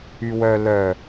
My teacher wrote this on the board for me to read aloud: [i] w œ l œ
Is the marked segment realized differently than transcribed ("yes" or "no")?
yes